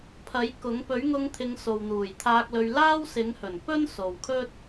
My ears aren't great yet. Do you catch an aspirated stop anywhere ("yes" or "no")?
yes